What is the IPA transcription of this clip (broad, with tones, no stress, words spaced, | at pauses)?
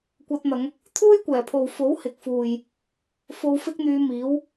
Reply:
kʷɐ˧t̚n̪ɐ˨˧ŋ | t̪ʰuː˥jkʷɛː˨˩pʰo˨w fo˨˥whɪ˨k̚fuː˨j | fo˧wfɪ˥k̚n̪yː˧miː˨˥w